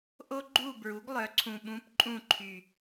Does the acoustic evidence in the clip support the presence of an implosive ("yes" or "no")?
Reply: yes